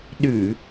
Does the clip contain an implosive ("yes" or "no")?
yes